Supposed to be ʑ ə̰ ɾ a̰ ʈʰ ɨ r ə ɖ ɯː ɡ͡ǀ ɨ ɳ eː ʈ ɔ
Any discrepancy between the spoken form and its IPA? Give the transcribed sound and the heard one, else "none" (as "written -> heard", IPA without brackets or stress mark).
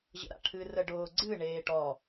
ɯː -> ʊː